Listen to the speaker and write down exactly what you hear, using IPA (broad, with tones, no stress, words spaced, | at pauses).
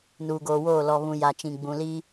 nuː˨ɡoː˨woː˦˨ lɔ˨ βũ˨ ja˨t͡ʃĩ˨ ɡ͡bũ˨liː˦